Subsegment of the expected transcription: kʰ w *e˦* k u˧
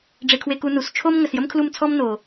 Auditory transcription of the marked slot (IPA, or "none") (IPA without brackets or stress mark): e˧